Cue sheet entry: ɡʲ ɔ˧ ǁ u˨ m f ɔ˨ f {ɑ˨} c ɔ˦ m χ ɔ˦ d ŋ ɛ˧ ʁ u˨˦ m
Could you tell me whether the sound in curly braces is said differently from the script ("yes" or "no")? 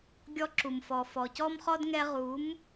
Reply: yes